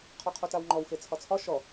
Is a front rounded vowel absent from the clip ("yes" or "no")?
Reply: yes